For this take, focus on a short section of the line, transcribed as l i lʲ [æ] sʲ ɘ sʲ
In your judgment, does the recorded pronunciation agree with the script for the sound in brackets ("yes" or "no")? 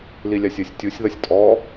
no